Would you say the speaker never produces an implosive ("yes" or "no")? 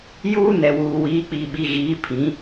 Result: no